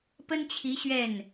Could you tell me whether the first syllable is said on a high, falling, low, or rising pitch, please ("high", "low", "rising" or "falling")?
high